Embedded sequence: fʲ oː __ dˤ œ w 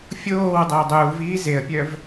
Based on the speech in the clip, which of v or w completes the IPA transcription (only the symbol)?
w